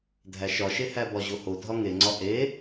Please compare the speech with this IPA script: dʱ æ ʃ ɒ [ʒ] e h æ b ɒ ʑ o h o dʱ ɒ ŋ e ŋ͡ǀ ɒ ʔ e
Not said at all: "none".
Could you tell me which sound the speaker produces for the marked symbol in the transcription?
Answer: ʃ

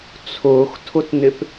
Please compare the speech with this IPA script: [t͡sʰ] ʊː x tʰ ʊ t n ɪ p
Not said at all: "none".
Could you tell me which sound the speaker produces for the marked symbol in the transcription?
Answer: t͡sʰ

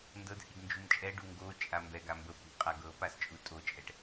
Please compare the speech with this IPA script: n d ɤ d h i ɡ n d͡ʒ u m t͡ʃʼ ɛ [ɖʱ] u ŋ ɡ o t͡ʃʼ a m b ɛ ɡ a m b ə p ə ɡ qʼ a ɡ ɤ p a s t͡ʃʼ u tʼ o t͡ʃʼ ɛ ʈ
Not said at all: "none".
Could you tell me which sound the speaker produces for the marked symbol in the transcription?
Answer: ɖ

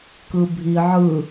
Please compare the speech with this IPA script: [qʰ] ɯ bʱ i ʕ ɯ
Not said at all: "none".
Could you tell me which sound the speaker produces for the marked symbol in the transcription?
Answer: k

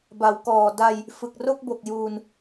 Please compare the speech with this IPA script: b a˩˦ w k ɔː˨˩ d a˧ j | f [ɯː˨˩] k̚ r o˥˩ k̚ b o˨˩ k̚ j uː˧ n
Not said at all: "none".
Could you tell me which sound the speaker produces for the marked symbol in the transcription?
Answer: ɯ˨˩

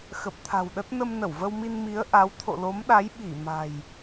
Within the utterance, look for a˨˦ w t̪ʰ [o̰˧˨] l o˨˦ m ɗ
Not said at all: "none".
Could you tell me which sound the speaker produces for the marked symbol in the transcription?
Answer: o̰˧˨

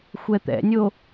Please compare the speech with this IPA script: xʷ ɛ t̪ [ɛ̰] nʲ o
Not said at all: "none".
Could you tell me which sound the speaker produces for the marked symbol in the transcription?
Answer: ɛ̰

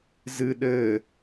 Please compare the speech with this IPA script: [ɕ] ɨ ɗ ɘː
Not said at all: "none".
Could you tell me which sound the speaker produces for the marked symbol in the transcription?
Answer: z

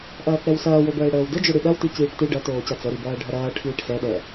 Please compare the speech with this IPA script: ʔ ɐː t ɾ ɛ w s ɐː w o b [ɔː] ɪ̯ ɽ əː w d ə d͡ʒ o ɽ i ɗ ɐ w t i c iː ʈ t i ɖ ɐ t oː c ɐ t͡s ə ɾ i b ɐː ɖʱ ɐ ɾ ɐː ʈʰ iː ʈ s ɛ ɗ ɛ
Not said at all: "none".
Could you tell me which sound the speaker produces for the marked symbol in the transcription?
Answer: əː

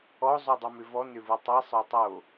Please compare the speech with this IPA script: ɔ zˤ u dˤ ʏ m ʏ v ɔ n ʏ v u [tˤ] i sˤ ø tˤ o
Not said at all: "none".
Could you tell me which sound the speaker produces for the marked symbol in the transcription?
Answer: tˤ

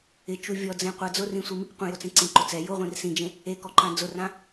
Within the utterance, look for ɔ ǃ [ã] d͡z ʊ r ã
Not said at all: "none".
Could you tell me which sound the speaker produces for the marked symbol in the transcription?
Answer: ã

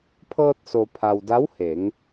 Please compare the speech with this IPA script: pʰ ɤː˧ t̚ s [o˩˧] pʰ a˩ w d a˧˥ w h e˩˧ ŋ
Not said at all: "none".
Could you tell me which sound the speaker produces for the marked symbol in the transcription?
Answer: o˩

